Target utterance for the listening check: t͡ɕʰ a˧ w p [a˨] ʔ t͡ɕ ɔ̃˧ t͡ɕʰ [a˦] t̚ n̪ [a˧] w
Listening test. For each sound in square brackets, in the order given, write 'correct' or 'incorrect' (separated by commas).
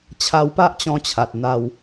incorrect, incorrect, correct